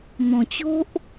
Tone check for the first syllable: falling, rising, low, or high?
low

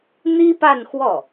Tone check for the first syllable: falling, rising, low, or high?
high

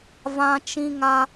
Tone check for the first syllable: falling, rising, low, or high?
high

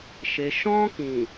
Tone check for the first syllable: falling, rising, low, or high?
low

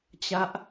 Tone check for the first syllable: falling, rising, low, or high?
high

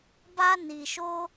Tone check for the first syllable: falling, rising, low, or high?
high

